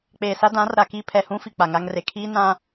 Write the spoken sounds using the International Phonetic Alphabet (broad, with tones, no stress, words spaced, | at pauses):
k͡peː˨sa˦ dã˨˦r ɾa˨ kiː˦pʰɛ˨ hũ˦ fi˨k͡pa˨ŋa˦ŋre˨ kʰiː˦nã˦